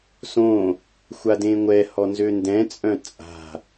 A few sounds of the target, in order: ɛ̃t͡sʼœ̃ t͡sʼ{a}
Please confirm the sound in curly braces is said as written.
no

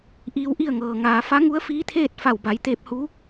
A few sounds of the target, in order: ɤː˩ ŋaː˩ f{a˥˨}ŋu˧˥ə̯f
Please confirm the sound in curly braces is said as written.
no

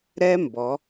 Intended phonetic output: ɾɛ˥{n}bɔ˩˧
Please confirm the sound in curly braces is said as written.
no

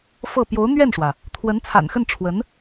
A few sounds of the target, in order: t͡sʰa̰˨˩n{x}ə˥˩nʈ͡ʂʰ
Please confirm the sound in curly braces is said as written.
yes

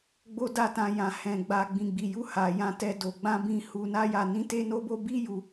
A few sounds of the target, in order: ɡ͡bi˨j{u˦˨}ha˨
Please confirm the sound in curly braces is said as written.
no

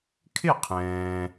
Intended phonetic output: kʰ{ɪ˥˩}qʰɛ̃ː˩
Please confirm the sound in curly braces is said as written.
yes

